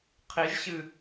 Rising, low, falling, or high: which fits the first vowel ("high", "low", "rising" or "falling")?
rising